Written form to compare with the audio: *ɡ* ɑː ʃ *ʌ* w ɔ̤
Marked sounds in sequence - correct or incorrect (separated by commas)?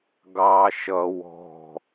correct, correct